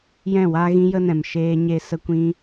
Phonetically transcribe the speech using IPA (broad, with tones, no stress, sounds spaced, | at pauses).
j ɛ̃˦˨ w a˦ ɣ ĩ˦ j ə˦ n ɛ̃˨ m ʃ eː˦ ɲ e˦ s ə˦ kʷ ĩ˦